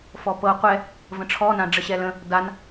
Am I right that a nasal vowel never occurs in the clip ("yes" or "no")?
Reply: no